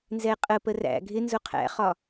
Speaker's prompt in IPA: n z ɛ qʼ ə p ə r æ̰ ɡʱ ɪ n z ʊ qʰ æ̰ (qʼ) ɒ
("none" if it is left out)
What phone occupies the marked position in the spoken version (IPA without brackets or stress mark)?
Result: χ